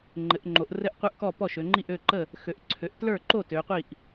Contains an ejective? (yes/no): no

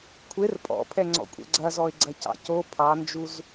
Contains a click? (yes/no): yes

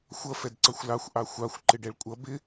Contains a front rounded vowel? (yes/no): no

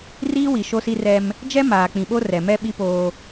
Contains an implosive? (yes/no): yes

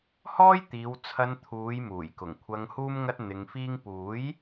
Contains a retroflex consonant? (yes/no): no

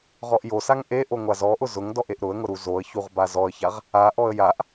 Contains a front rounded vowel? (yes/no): no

